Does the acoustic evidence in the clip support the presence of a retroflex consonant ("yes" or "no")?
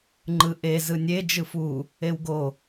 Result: no